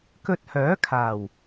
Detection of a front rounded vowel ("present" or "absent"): present